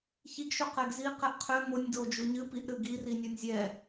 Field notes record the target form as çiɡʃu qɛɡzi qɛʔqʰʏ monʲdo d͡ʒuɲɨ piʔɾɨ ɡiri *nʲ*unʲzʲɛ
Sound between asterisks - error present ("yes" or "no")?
no